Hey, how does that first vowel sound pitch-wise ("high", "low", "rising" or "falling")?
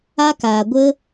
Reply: high